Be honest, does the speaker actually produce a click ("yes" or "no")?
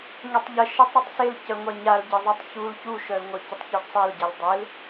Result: no